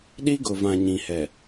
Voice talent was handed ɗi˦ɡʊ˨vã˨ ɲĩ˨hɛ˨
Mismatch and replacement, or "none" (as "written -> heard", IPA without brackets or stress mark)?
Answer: none